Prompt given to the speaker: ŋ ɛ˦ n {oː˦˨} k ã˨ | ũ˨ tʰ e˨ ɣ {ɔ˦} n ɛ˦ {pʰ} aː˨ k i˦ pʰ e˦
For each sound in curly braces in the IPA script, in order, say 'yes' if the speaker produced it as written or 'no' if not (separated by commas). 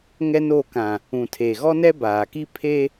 no, yes, no